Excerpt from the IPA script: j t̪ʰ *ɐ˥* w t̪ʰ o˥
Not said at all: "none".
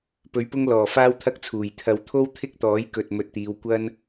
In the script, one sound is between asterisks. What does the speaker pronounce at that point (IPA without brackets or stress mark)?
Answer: ɐ˨